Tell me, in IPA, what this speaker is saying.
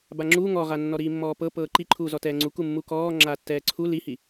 b a ŋ͡ǁ uː ŋ ɔ ʁ a nː ɔ ɾ iː mː ɔː p ɤ p ɤː ǃ i ǃʰ uː z ɔ t ɛː ŋ͡ǀ u k u mː u k ɔː ŋ͡ǁ aː tː ɛː ǀʰ u l i h i

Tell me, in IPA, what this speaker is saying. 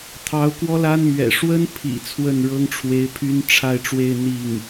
t̪ʰ ɑ˧˥ ʊ̯ k w ɔ˥ l a˥ n m ɥ ɛ̰˨˩ ʂ w ə˥ n pʰ ḭ˨˩ t͡sʰ w ə˥˩ n ɻ ɤ˥ ŋ ʈ͡ʂʰ w e˧˥ ɪ̯ pʰ y˥ n ʈ͡ʂʰ a˥˧ ɪ̯ ʈ͡ʂ w e˥˧ ɪ̯ n̪ i˥˩ ŋ

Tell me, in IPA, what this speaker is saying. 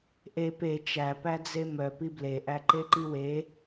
ʔ e p e t͡ʃ æ p æ d͡z e m œ p i b l e ʔ æ ǃ e ǃ i w e

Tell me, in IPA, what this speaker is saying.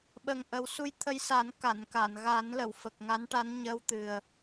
ɓ ə˨˩ ŋ ʔ ə˨˩˦ w s u˧ j t̪ʰ ə˧ j s a˨˩˦ n k a˨˩˨ n k a˨˩˨ n ɣ a˨˩˦ n l ə˨˩˨ w f ə˨˩ k̚ ŋ a˧˥ n ʈ a˧˥ n ɲ əː˧ w t̪ ɨ˨˩ ə̯

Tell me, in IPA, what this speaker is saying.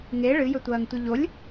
ŋ e ɭ ɨ j ɵ tʷ ɐː ŋ tʷ ɨ ʎ o lʲ

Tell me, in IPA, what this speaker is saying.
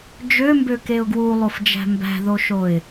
d͡ʒ ø m b ø k e ʊ̯ ɡ w u lˠ o f d͡ʒ æ̤ m b æ̤ ð o ʃ o ɪ̯

